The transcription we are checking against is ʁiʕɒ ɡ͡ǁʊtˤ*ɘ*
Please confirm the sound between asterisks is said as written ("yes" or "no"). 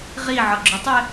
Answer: no